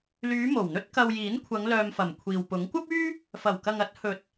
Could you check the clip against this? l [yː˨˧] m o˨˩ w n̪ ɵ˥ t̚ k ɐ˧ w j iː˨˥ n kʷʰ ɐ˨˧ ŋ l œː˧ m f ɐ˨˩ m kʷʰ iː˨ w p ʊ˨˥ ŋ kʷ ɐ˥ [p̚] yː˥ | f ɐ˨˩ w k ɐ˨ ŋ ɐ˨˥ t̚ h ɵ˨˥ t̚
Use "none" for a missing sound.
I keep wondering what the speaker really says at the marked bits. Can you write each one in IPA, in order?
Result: yː˨˧, p̚

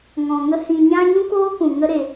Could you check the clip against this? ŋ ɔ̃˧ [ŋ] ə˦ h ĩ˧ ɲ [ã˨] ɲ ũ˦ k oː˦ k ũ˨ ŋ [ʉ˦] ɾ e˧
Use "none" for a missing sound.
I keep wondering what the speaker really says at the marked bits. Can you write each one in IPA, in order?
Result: ŋ, ã˦, ə˦

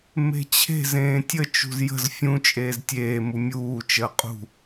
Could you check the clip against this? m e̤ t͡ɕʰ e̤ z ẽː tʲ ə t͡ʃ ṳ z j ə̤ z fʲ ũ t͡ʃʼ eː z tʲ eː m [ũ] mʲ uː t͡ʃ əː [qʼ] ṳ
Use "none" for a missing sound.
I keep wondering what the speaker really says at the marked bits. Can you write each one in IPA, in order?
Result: u, qʼ

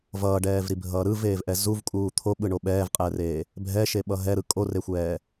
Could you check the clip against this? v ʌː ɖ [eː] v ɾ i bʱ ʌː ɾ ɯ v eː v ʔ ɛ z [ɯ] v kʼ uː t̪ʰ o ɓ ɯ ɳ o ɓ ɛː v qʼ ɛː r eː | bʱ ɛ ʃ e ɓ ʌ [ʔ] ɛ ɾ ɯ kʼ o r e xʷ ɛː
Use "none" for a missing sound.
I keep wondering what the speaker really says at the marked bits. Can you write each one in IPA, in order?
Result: ɛː, u, ɦ

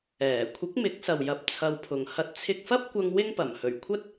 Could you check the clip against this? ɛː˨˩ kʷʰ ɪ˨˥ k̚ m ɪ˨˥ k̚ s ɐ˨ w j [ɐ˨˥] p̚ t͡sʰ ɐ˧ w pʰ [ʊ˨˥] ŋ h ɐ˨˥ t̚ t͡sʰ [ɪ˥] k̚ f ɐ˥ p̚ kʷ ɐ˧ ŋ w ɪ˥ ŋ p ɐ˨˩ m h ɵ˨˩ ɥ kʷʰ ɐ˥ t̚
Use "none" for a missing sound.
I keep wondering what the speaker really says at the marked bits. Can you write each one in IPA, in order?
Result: ɐ˨˥, ʊ˨, ɪ˧

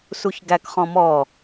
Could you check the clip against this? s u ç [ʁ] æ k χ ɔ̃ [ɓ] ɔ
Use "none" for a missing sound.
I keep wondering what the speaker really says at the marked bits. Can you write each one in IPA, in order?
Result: ɡ, m

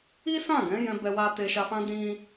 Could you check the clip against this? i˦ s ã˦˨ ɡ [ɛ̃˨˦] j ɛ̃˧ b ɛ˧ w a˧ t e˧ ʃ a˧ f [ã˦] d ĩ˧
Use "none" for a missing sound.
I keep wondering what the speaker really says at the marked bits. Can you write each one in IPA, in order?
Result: ɛ̃˨˦, ã˦

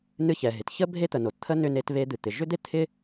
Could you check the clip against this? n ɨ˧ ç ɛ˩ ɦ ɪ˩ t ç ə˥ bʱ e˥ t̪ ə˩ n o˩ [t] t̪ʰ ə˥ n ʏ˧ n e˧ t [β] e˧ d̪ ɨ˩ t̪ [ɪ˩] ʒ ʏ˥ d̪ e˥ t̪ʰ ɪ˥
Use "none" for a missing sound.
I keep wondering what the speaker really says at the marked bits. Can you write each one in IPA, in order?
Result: t, β, ɪ˩

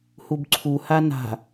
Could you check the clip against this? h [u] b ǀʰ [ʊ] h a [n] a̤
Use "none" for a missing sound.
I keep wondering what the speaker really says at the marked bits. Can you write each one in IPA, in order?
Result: u, u, n

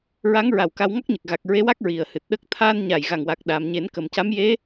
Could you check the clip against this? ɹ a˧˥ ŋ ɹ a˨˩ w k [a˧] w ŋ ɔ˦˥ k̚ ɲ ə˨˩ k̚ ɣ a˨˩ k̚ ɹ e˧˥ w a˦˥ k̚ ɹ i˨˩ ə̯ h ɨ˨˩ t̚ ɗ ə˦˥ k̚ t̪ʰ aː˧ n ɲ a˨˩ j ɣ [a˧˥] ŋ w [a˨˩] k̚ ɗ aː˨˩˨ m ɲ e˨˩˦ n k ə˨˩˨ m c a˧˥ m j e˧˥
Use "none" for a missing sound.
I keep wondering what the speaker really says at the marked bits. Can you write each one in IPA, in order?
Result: a˧, a˨˩, a˨˩

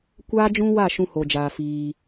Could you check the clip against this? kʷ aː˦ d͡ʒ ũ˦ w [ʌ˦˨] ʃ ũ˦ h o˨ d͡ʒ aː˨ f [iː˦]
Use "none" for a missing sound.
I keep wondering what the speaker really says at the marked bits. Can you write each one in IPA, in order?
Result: a˦˨, iː˦

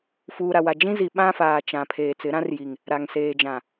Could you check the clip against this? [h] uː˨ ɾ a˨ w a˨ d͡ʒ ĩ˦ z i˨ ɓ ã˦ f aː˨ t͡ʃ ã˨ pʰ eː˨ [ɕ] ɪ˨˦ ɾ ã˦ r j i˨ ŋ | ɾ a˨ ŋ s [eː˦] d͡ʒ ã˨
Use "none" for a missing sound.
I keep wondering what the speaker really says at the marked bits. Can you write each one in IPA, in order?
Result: f, t͡s, eː˨

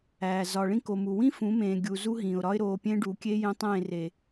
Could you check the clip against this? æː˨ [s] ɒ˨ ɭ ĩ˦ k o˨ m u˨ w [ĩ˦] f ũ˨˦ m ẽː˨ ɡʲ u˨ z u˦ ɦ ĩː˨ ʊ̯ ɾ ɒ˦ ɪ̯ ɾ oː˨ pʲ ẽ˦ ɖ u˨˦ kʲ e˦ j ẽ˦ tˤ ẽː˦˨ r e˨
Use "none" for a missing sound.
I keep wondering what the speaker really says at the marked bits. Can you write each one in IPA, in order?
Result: z, ĩ˦

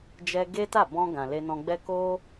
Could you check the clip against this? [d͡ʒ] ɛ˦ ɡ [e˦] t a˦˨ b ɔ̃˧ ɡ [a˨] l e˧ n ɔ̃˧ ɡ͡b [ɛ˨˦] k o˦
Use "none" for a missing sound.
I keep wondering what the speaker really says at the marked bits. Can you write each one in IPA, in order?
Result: d͡ʒ, e˦, ã˨, ɛ˦

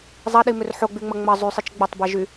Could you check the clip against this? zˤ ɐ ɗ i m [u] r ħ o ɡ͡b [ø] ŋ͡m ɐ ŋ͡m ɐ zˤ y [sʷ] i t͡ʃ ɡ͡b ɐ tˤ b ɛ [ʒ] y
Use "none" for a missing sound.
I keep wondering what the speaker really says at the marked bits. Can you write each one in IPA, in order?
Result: ʏ, y, sˤ, ʒ

